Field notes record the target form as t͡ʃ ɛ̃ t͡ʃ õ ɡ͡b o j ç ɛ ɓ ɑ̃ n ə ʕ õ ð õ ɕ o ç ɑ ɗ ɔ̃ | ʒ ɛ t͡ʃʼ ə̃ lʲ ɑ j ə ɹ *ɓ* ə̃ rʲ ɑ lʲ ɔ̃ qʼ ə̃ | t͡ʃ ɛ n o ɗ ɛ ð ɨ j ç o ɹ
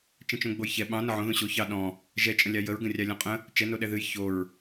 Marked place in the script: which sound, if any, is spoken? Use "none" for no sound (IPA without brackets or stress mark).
ɡ